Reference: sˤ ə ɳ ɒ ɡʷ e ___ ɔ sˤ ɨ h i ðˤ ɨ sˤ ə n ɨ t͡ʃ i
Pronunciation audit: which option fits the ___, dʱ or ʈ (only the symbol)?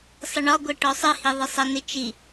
ʈ